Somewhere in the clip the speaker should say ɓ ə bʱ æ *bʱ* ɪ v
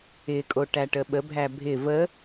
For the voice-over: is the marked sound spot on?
yes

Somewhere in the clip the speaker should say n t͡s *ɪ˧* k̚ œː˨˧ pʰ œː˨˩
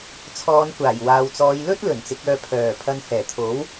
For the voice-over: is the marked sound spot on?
no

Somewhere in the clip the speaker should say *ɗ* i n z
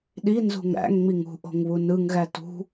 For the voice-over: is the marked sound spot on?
yes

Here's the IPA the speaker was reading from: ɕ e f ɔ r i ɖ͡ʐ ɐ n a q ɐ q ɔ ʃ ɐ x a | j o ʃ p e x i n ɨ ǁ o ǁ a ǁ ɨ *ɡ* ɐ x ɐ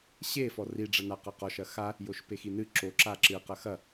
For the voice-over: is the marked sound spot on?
no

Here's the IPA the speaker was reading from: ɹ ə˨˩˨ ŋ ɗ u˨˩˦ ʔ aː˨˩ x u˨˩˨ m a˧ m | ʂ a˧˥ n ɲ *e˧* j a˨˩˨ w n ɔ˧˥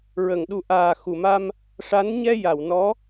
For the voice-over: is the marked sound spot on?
no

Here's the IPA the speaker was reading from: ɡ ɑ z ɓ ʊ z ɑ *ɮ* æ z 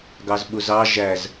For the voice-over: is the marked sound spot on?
no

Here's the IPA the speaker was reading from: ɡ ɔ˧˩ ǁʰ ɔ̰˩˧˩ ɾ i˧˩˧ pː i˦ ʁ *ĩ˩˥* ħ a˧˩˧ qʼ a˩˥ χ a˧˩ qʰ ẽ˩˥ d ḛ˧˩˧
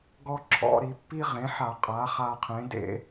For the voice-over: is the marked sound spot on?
no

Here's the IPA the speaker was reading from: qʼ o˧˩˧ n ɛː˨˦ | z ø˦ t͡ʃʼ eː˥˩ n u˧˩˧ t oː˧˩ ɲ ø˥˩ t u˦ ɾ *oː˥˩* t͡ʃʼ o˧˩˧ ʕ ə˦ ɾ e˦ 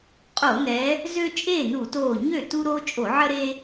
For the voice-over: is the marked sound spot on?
no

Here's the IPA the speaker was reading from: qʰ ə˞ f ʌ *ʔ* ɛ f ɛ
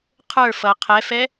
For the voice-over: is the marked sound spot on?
no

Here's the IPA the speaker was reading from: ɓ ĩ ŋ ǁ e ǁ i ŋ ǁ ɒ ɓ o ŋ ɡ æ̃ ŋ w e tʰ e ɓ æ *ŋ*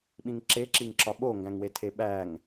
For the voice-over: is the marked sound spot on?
yes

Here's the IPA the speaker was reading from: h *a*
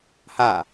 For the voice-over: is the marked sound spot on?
yes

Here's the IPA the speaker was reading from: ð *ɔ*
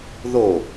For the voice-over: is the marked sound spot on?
no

